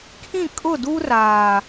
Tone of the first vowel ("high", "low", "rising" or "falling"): falling